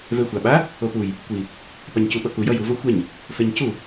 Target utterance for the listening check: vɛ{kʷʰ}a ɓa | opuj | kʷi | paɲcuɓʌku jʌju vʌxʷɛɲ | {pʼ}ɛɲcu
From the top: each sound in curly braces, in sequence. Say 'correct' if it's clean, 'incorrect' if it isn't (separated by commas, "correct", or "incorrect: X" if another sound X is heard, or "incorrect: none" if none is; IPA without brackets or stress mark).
incorrect: xʷ, incorrect: f